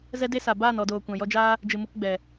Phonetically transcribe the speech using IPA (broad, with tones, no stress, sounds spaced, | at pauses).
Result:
z ɛ˦ d e˦ s a˨ b aː˦˨ n ɔ˨ d oː˨ kʷ ã˨ j ɔ˧ d͡ʒ aː˦ | d͡ʒ ɨ˨ m u˧ k ɡ͡b ɛ˨